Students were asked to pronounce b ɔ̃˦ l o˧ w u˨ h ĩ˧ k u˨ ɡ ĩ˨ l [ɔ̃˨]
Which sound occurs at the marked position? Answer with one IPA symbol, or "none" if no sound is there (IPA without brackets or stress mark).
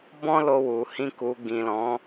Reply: ɔ̃˨˦